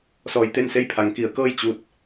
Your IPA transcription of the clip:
sɔː˧jt̪e˥˨nse˥˨jpʰa˩˧ŋ ki˩˧ə̯kɤː˥˨j t͡ɕu˧t̚

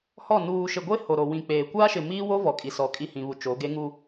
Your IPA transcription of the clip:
hɔ˦˨ nuː˨ʃɪ˨ɡʷe˦ ho˨ɾo˨wĩ˨k͡peː˨ kʷaː˦ʃɪ˨miː˦wo˦ vɔ˨kʼi˨sɔ˨ kʼi˦˨hĩ˨βu˨ t͡ʃo˨˦ ɡe˦ŋu˦

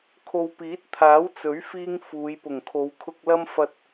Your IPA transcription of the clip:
kʰo˨wpiː˨˥t̚t̪ʰaː˨˥w t͡sɵ˨˥ɥfiː˧ŋ fuː˨˧j pʊ˨˩ŋkʰo˨˧w kʰʊ˧k̚lɐ˥m fɐ˧t̚

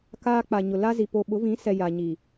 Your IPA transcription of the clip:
kaː˦k͡pa˨ɲʊ˨ la˦zi˨ po˨ɓʊ˨˦vĩ˨˦sɛ˨ ja˨ɲi˨

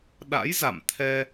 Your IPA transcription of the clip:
ɗa̰˧˥jza̰˧˨mt̪ʰɛ˧

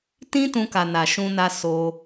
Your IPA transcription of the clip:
tĩ˦tũ˧ka˨ na˨ʃũ˧na˧ so˧

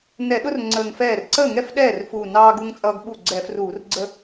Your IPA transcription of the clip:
nɛ˧˩˧ɗʊ˦r ŋ͡ǀəː˧˩ŋfɛː˥˩r ǀəː˥˩ŋɛ˥˩f ɗɛː˥˩rfuː˧˩ nɑː˦ɡu˦ŋt͡sʼʌː˦ɡ ɓu˥˩ ɡ͡ǀɛ˧˩˧fruː˧˩˧rɡ͡ǀə˦

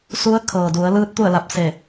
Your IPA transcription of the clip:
su˧˥ə̯kʰɤː˩du˩˧ə̯lɯː˧˥t̚ t̪u˥˨ə̯la˧p̚ se˧˩

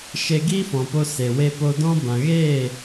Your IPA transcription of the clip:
ʃe˧ɡiː˦fɔ̃˨po˧ se˨we˦ po˧dɔ̃˦ bã˨ɣeː˦˨

